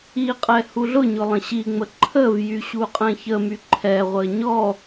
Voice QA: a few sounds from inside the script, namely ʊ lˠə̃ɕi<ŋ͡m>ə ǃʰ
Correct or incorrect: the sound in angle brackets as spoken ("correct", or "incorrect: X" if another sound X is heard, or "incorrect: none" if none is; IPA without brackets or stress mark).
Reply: correct